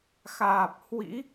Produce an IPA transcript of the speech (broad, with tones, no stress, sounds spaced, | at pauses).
x aː˨˩ p̚ h w ḭ˧˥